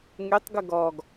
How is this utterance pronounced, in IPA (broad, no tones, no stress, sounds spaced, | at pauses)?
ŋ y tˤ ɡ ə ɡ ɔ ɡ